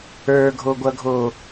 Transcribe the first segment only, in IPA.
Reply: ə˞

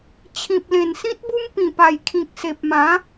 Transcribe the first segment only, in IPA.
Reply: t͡ɕʰ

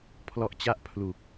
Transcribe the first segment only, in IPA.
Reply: pʰ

